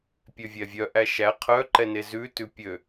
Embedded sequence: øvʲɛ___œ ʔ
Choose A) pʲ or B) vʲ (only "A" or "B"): B